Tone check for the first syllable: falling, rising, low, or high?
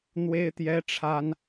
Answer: high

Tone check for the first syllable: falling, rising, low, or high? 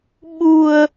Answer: low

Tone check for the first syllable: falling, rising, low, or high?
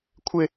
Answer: high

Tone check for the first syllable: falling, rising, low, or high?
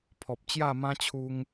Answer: low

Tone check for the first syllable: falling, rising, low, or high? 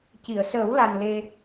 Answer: low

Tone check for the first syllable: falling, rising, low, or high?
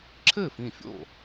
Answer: falling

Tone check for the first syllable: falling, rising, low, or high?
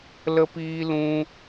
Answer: high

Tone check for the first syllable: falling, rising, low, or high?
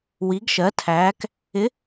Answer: rising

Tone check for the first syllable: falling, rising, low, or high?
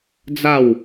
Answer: falling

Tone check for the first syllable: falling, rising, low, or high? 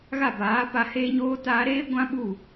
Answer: falling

